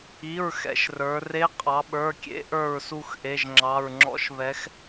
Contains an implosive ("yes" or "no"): yes